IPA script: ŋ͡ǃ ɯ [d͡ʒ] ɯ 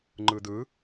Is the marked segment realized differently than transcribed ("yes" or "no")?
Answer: yes